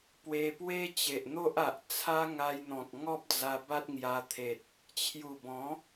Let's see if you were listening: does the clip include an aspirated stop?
yes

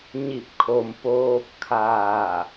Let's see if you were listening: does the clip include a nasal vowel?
no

